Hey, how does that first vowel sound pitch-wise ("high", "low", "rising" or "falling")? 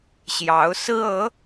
rising